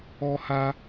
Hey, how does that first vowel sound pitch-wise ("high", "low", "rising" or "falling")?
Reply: high